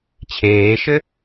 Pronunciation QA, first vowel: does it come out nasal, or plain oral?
oral